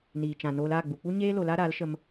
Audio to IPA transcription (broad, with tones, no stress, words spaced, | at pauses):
niː˨t͡ʃã˨ noː˧l aː˦˨ɡ͡bu˨k͡pu˦ ɲeː˦ lo˧laː˦ɾaː˨˦lʃə˧m